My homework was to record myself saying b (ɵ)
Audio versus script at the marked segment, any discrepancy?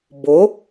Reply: yes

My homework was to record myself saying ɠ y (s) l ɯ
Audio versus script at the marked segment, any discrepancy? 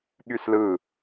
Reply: no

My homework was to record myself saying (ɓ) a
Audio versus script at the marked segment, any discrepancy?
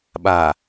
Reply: no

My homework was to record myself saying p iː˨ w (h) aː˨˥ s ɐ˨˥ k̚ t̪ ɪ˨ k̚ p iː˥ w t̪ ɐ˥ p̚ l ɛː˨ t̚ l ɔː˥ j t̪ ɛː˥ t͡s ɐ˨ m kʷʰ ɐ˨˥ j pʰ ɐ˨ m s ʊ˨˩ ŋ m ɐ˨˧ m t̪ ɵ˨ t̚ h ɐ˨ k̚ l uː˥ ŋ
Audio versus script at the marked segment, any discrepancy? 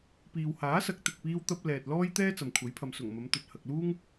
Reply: no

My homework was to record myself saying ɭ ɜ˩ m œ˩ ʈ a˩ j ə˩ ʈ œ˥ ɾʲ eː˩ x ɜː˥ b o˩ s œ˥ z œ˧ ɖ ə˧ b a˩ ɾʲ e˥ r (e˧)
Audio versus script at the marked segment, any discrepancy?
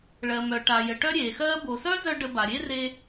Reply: no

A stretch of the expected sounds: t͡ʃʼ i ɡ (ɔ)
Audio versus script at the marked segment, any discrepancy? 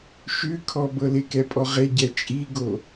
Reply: yes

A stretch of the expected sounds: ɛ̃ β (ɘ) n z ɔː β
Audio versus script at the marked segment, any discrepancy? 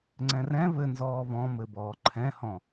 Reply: no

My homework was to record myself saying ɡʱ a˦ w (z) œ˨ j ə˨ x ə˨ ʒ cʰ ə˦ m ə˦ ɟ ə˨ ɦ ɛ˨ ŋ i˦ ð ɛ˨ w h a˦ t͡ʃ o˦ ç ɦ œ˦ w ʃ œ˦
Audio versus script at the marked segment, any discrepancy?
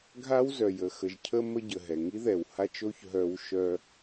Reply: no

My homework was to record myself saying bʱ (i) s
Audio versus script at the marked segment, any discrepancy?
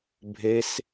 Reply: yes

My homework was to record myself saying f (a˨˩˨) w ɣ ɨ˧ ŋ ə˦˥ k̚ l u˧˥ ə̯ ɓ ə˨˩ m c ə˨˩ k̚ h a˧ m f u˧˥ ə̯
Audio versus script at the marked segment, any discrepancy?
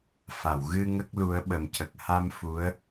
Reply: no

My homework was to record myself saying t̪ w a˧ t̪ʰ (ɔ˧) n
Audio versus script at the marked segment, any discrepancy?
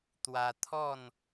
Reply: yes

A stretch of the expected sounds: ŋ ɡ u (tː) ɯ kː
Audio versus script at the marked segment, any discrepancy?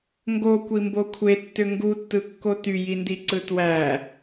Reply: no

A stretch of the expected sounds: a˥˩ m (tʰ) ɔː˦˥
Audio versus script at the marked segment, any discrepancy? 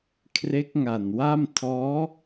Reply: no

